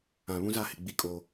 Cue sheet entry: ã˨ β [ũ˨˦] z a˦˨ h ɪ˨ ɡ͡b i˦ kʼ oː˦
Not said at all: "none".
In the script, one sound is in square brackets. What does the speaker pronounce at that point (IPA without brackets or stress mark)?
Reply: ũ˦